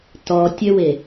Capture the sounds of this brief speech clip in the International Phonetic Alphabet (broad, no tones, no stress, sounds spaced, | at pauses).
t ɔ tʲ ø w e